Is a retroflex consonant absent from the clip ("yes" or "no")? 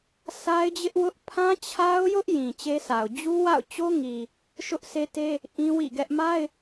yes